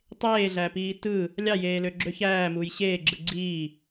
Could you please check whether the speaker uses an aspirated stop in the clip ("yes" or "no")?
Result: no